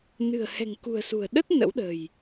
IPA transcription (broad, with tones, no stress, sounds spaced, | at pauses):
n ɨ̤˨˩ ə̯ h ɛ̤˨˩ ŋ k ṳ˨˩ ə̯ s ṳ˨˩ ə̯ ɗ ə˦˥ t̚ n ə̰˧˥ w ɗ ə̤˨˩ j